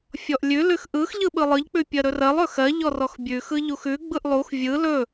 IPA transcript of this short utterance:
fʲ ɔ ʔ lʲ ʉ l ʉ x ʔ ɯ x ʎ ɯ ɓ ɯ lˠ ɯ ʎ k͡p ʉ pʲ ɜ ɾ ɵ r ɜ lˠ ɵ x ɜ ʎ ɔ r ɔ x bʲ ʉ x ɯ ʎ u x ʉ ɡ͡b ɯ ʔ lˠ u x vʲ ɯ l ɵ

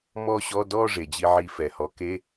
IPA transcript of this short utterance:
m ɔ˥˧ ɕ ɔ˧˥˧ d ɔ˥˧ ʐ e˩ d͡ʑ i˧ ʕ i˧ f ɛ˩ h ɔ˩˥ k e˧˥˧

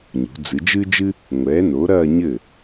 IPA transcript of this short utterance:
ɲ ṳ˩˧ d͡z ɨ˩˧ d͡ʒ ɨ˥ d͡ʒ ɨ˥ | ŋʷ ɛː˩˥ n o˩˥ ɾ ɐː˥˧ ɲ ɘ˥˩

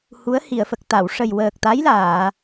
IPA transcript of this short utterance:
h u˧˥ ə̯ h i˨˩˨ ə̯ f ə˨˩ k̚ t̪ a˨˩˨ w ʂ ə˨˩ j w əː˨˩ k̚ t̪ a˧˥ j l aː˨˩˨

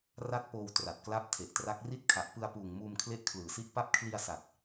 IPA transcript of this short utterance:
r a˦˥ t̚ p oː˧ w t r a˨˩ t̚ k l a˦˥ p̚ tʰ e˨˩ ʔ t r a˦˥ k̚ r i˦˥ t̚ kʰ a˨˩ ʔ p ɯ˧ a̯ p uː˨˩ ŋ m uː˧ m kʰ l e˦˥ ʔ kʰ l ɯː˨˩ s i˦˥ ʔ p a˦˥ p̚ kʰ l i˧ a̯ s a˨˩ t̚

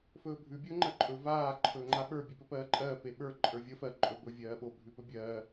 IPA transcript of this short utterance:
f ɵː bʱ ʉ bʲ ɵː ŋ͡ǃ ɜ ǃʼ ɵ v aː ǃʰ ɵː ŋ͡ǃ a ɓ ə˞ bʲ ʉ p ɵ p ɜː ǃʼ ɜː p e ɓ ə˞ ǃʼ ə˞ vʲ ə f ɜ ǃʼ ɵ b ɵ vʲ ɜː ɓ o bʱ ʉ p ɵ bʲ ɜː

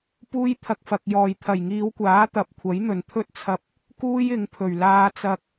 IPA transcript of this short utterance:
p uː˥ j t̪ʰ ɐ˧ k̚ f ɐ˨ k̚ j ɔː˨˩ j t̪ʰ ɐ˨˩ j ŋ iː˨˧ w kʷ aː˨˥ t̪ ɐ˨ p̚ kʷʰ ɐ˨˥ j n̪ ɵ˨˩ n t̪ʰ ɵ˥ t̚ t͡sʰ ɐ˧ p̚ | k uː˥ j ɪ˨˧ ŋ pʰ ɵ˨˩ ɥ l aː˧ t͡s ɐ˧ k̚

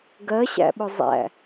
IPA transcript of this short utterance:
ɡ ɜ ɕ æ̰ ɓ ʊ zˤ æ̰

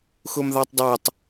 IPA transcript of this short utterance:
x ʊ m ð ɑ tˤ dˤ ə˞ tˤ

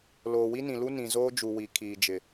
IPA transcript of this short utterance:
l oː˨ w i˦ n ĩ˨ l u˦ n ĩ˨ z oː˦ d͡ʒ u˨ w i˨ kʰ iː˨ d͡ʒ ɪ˨

